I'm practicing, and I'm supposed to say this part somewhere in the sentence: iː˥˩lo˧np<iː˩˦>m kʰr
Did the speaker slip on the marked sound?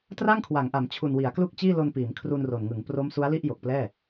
no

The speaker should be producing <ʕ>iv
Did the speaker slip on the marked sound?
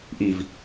yes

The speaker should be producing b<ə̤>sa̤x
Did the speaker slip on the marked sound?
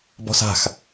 yes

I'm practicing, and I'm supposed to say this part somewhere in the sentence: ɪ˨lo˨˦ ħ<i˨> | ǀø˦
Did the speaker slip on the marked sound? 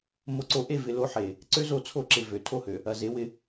yes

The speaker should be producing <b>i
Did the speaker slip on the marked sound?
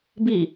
no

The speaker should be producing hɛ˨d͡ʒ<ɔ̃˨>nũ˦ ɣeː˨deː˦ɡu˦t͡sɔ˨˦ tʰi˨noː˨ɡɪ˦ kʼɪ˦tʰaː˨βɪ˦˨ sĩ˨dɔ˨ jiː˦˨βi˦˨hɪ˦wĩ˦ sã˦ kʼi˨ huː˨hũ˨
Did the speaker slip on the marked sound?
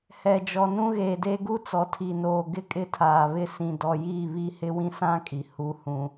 yes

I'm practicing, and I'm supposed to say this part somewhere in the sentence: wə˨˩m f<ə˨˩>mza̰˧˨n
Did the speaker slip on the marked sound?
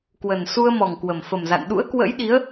no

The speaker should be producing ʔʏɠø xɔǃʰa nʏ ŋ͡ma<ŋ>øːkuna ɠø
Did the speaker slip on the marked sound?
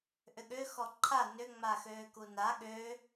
yes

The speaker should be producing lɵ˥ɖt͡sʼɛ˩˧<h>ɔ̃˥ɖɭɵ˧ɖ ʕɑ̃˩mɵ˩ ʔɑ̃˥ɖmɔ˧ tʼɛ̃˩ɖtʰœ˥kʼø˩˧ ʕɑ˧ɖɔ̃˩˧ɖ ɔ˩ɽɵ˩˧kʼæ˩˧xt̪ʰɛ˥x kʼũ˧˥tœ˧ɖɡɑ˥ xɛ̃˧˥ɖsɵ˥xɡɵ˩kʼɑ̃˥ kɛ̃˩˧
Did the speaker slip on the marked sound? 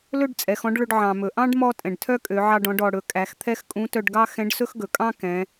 yes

